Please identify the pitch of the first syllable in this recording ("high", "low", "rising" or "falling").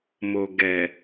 low